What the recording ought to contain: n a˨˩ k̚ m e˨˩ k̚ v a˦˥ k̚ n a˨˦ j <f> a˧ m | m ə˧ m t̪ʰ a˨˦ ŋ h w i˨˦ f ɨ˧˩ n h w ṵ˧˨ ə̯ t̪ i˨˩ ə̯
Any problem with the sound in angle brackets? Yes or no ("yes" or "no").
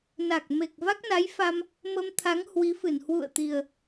no